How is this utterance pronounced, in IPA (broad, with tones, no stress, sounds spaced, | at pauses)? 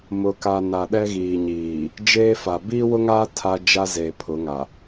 m ʊ˨ k a˨ n a˨ ɗ ɛ˦ ɣ iː˨ ɲ iː˨ | d͡ʒ eː˦ f a˨ b iː˦ w ʊ˦ ŋ aː˦ tʰ a˦ d͡ʒ a˦ z e˨ pʰ ʊ˨˦ ŋ a˨